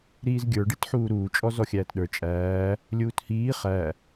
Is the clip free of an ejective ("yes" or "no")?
no